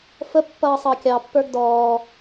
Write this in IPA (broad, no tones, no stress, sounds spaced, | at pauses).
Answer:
f ə pː ʌː sˤ ɑ kʲ ɑ pː ə˞ ɡ d ɔː